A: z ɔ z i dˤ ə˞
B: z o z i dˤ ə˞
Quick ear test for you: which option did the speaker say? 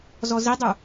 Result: A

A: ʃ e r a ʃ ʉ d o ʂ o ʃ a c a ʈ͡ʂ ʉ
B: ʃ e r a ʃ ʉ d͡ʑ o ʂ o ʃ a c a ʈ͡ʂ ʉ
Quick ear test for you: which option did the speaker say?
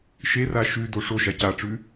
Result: A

